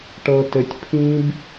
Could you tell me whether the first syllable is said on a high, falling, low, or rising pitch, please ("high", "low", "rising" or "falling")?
low